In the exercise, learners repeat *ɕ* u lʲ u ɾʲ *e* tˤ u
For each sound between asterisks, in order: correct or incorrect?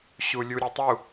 correct, correct

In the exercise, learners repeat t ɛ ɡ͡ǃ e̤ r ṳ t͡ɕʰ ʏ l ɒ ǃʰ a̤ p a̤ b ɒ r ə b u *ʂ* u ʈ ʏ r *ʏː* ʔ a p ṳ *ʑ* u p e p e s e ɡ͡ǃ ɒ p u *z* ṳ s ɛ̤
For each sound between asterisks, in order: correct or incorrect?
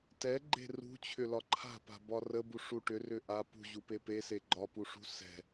correct, incorrect, correct, incorrect

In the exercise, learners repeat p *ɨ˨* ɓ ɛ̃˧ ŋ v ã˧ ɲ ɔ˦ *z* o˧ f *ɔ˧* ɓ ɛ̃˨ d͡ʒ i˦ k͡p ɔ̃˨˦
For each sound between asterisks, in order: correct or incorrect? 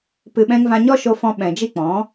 correct, incorrect, incorrect

